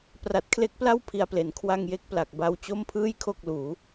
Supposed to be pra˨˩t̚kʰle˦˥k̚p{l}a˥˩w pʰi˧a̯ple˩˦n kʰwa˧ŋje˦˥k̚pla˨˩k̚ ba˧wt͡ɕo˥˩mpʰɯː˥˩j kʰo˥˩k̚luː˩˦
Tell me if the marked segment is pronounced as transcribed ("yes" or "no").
yes